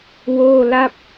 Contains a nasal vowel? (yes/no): no